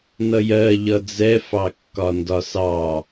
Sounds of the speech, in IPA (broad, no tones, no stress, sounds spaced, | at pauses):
n ʌ j ɜ ʎ ʌ d͡z ɛ f ɑ kː ɒ n d ɒ s ɑ